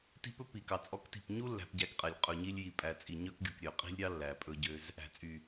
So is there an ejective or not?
yes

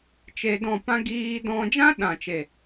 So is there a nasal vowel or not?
yes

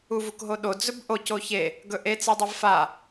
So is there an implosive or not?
yes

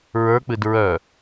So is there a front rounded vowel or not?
yes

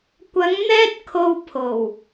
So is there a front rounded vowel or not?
no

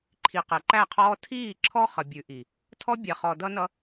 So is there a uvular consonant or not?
yes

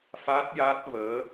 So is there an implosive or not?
no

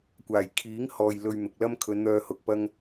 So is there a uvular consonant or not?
no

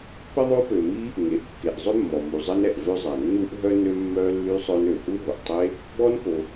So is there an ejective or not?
no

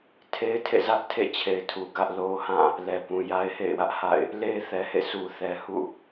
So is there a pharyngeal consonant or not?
no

